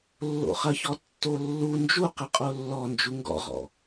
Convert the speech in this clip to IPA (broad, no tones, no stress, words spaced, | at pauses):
lːo̰χɐçɔ tːolːu nd͡ʒuqə qʼolːɔnd͡ʒu ŋɡɔ̰ʁɔ̰